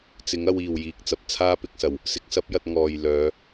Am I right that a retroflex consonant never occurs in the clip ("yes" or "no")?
yes